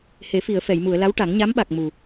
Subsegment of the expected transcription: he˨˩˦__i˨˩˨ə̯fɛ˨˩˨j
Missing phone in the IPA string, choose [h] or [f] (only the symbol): f